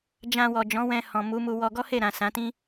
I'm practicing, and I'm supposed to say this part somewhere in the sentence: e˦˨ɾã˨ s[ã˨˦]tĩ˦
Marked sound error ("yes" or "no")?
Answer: no